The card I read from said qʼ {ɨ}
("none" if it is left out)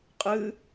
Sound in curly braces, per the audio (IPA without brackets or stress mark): ɨ